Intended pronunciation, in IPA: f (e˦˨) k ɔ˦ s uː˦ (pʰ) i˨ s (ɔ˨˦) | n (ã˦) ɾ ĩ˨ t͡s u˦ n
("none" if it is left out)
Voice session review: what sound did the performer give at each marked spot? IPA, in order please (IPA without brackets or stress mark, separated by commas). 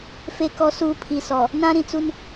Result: e˦˨, pʰ, ɔ˨, ã˦